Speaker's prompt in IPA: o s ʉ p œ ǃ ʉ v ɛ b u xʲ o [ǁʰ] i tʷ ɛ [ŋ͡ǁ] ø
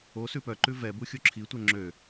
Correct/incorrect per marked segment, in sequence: correct, correct

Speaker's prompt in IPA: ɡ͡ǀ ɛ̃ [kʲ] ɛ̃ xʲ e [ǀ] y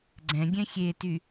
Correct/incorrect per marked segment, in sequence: incorrect, incorrect

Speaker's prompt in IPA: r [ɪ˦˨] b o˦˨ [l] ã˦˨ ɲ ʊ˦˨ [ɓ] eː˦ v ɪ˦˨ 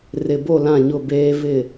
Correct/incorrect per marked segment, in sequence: incorrect, correct, incorrect

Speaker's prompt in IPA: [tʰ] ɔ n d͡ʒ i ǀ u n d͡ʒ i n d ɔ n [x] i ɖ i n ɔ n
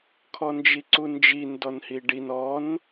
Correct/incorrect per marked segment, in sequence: incorrect, incorrect

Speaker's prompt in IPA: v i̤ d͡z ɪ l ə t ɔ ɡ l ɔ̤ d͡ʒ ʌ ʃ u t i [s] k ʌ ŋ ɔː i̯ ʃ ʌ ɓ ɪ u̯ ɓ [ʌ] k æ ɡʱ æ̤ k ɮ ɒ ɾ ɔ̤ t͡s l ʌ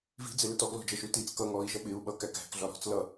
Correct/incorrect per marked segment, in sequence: incorrect, correct

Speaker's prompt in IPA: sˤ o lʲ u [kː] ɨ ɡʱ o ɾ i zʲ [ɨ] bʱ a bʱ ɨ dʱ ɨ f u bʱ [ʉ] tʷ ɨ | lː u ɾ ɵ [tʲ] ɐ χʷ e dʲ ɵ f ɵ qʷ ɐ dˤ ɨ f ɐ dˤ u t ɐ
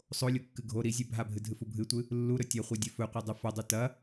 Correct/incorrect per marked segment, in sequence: correct, incorrect, incorrect, correct

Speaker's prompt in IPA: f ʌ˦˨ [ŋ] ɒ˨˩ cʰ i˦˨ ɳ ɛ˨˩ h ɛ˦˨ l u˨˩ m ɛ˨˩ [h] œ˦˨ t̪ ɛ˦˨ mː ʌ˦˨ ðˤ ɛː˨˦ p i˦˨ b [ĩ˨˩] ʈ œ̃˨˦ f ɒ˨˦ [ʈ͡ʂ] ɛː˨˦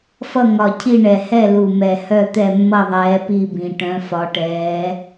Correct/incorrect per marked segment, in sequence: correct, correct, correct, incorrect

